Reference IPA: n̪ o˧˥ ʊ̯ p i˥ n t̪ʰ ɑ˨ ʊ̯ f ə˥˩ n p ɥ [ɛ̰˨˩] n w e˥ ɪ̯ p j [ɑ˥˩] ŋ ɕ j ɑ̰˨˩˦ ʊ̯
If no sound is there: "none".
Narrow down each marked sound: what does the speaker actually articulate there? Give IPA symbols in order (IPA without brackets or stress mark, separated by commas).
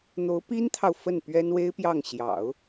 ɛ˥, ɑ˥˩